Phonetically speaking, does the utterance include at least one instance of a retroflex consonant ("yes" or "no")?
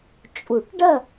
yes